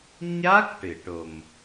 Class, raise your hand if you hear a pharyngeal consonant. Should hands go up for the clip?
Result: no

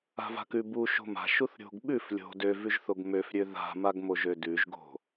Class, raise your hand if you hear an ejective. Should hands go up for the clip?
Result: no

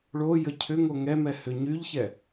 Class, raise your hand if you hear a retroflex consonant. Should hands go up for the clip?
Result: yes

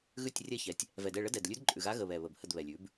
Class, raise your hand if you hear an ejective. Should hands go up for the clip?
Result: yes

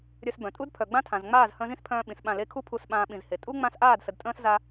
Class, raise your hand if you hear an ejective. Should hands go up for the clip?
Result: yes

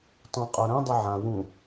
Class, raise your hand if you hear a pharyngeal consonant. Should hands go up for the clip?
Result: yes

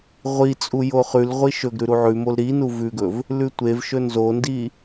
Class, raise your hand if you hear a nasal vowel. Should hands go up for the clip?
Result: no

